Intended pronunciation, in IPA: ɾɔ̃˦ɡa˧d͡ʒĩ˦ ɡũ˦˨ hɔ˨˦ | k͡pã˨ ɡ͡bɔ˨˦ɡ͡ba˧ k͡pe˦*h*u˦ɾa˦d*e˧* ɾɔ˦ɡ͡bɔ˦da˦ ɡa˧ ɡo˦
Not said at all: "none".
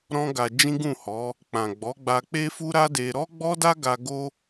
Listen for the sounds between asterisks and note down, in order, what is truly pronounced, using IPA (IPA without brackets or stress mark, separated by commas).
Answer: f, e˧